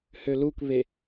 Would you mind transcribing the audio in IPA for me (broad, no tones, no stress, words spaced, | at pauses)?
hølukβe